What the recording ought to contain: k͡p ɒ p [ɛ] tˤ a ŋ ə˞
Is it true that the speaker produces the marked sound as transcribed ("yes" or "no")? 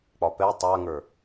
yes